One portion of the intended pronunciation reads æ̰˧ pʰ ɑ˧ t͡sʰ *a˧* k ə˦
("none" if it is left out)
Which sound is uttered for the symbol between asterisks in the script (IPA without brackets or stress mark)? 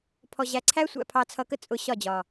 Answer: ʌ˧